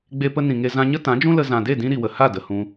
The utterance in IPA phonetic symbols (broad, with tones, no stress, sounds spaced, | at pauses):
ɡ͡b e˧ p ə˧ n ĩ˨ ŋ e˧ z ã˧ ɲ ə˦ t ã˨˦ d͡ʒ ũ˦ l ə˧ z ã˨ d e˦˨ d ĩ˧ ɾ i˨ w ə˨ h a˦˨ d ə˨ h ũ˧